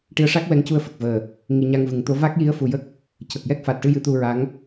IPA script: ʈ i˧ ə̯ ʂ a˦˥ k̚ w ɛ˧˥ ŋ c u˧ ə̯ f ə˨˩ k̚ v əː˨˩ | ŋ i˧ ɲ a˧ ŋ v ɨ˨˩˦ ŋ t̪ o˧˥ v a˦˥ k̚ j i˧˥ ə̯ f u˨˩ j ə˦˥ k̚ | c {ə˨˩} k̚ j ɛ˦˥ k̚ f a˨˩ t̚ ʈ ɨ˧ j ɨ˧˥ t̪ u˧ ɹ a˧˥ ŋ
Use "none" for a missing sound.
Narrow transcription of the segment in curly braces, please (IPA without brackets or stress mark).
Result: ə˨˩